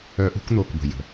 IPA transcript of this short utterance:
œ˨˦ʔṳ˨˦kn̪o˩˧˩kbə̤˩ jə̤˩

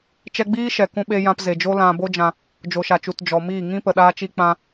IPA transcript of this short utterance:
t͡ʃɛ˧ɡ͡biː˦ ʃɛ˨kũ˧ɓe˧jã˧p ze˨d͡ʒo˦lã˧ bo˦d͡ʒã˧ | d͡ʒo˨ʃa˨t͡ʃu˨t d͡ʒɔ˨miː˦˨ ŋĩ˦pə˨ ɗaː˧t͡ʃi˧ k͡pã˧

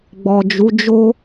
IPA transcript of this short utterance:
ɡ͡bɔ˨d͡ʒu˨˦d͡ʒo˦

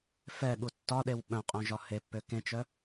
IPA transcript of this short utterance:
fɛɠu tːɒɗew ɓœ̃qʼœ̃ʒɒ hepːø kẽt͡ʃœ

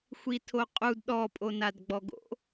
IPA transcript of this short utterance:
xʷitʰoqʼud ɗɔpʼo nadɡ͡bɔɡo̰

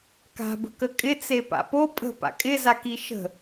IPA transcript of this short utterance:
ka̤ bə̤kəkʼɪ t͡sepa̰po pʼə̤ pa̰kʼɪ zakiʃə̤

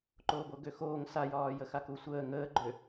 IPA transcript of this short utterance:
ǃoːboɡøxoːŋ sajɒː jəxakusʷəː ŋəːɡ͡ǃø

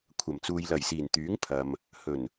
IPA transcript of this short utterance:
kʷʰɐ˨˩mt͡suː˨j lɐ˨˩jsiː˨˩n t̪yː˨˥ŋpʰɐ˨m | hɵ˨˩n

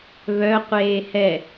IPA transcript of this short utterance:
βœ qʷeːhɛ

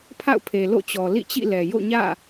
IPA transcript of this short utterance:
pʰa̰˦˨ʊ̯pʰe˨ lo̰˦˨t͡ɕɔ˨ lḭ˦˨t͡ɕḭ˦˨lɛ˨ jo̰˦˨ɲä̰˦˨

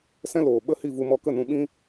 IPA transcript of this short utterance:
sɛ̃˦loː˨ ɓə˦hi˦˨vu˧ mɔ˧kə˦˨nũ˧ɓĩ˦

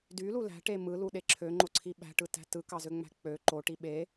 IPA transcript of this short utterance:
dylu læ̤ʈe mɯluɗe ǁʰøŋ͡ǃoǀʰi ɓæ̤ʈɯtæ̤ tɯkɑzøŋ͡mæ̤ k͡pø ǃoʈi ɓe

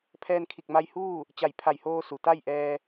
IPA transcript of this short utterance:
pʰɛː˧nkʰi˧˩k̚ma˧j huː˥˨ | t͡ɕa˧˩jpʰa˧˩jhoː˧su˩ t̪a˥˨jʔɛː˧

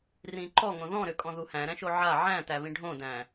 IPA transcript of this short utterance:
rĩǃɔŋõ ðɔ̃ɾʏ kʼɔ̃ðuhæ̃ ɾæ̃ʃoʕa ʕæ̃tæβĩ ɖʱõdæ̃

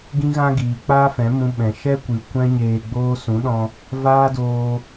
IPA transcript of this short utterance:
ɡĩ˦ɣã˦ɡiː˨ k͡paː˦fɛ̃˨˦mũ˧ ɓɛ̃˨ ʃɛ˦kʷɨ˨ kʷɛ̃˦ɲeː˧ɡ͡boː˦ sũ˨˦ɗɔ̃˧ | vaː˦doː˧

